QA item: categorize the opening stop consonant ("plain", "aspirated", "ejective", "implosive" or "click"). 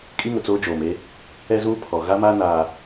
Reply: ejective